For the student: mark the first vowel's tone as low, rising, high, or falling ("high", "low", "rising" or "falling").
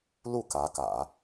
falling